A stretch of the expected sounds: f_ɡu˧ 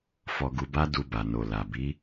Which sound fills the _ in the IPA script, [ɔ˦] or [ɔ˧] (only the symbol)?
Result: ɔ˧